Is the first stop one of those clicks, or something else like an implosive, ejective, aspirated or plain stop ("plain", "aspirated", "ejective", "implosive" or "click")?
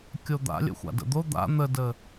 plain